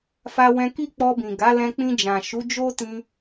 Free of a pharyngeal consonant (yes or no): yes